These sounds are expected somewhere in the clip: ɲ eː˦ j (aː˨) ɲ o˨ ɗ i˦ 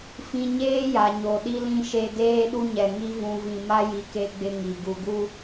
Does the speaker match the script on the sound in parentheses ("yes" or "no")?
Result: no